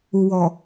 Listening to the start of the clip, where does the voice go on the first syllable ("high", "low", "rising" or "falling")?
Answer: low